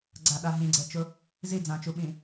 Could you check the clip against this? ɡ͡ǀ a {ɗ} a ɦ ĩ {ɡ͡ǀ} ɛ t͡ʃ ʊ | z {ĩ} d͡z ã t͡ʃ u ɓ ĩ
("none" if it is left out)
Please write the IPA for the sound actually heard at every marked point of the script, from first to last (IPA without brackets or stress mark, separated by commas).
ɗ, ɡ͡ǀ, i